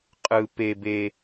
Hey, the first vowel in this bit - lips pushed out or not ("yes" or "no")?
no